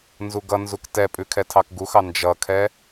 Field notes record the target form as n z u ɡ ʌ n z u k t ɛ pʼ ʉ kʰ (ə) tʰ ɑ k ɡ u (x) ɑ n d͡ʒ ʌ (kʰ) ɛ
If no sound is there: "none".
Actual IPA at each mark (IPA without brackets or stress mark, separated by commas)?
ɛ, x, kʰ